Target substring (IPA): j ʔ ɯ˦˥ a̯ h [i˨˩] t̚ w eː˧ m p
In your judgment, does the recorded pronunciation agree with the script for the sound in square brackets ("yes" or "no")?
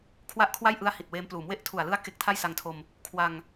yes